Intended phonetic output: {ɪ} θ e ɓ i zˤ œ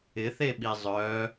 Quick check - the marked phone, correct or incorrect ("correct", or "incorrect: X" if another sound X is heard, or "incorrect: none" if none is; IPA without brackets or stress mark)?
correct